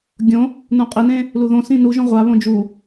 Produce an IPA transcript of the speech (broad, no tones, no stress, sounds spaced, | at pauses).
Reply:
ɡʲ õ | n ũ qʼ e n ẽ | l u ð õ s ĩ n u ʒ õ ʁʷ a β õ d͡ʒ u